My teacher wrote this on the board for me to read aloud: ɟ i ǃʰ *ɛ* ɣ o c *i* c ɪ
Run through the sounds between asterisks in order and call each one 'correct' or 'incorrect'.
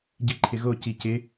incorrect, correct

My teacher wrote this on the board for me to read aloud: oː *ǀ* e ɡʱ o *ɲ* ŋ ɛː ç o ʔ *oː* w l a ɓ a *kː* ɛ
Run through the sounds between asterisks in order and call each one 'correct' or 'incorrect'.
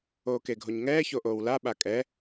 incorrect, correct, correct, incorrect

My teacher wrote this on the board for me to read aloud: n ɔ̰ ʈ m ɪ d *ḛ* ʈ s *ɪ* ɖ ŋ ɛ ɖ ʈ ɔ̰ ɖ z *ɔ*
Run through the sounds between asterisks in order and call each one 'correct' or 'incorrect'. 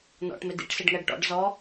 incorrect, correct, correct

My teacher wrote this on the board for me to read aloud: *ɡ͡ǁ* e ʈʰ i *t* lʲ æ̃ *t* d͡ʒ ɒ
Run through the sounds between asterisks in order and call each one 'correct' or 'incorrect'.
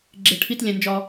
correct, correct, incorrect

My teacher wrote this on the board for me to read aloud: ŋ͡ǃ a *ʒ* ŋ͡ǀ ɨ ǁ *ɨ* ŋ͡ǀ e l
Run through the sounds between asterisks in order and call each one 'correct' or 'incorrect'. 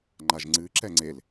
correct, incorrect

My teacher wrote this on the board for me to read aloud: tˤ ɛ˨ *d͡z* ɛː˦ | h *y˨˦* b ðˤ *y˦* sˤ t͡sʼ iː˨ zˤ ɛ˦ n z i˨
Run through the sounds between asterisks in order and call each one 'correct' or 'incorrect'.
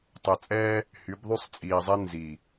incorrect, correct, correct

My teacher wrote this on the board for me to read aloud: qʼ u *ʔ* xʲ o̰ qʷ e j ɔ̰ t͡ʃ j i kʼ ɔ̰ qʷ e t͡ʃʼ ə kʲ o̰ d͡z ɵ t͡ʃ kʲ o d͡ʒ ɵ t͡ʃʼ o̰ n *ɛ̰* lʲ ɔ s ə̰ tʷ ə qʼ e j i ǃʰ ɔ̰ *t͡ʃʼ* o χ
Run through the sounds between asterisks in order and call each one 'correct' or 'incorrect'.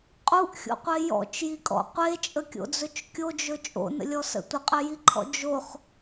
correct, incorrect, incorrect

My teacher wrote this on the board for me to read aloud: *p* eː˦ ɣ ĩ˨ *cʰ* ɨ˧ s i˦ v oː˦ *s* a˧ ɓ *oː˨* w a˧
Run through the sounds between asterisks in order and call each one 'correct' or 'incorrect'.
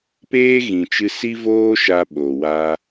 correct, incorrect, incorrect, incorrect

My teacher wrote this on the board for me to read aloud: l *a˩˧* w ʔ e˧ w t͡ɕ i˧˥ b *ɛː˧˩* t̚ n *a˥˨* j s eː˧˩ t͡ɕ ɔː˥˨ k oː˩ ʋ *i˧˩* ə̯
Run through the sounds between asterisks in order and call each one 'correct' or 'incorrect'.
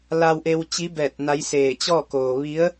incorrect, correct, incorrect, incorrect

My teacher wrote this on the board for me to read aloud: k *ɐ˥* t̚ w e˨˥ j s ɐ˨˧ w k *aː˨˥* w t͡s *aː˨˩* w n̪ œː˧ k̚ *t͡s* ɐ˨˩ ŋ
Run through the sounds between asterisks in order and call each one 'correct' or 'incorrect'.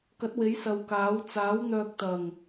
incorrect, correct, incorrect, incorrect

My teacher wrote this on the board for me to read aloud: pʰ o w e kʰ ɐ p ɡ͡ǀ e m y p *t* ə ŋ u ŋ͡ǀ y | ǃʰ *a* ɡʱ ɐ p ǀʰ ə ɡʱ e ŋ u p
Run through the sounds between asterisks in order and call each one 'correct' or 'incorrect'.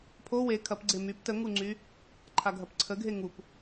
correct, correct

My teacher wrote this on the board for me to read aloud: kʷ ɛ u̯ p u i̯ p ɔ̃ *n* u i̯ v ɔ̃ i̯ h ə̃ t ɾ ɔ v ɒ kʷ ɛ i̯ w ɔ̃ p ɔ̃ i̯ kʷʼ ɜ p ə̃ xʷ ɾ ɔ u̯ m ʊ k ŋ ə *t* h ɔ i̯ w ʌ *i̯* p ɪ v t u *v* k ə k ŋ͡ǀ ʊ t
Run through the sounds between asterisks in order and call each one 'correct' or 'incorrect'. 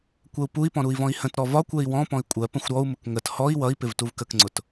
incorrect, correct, correct, correct

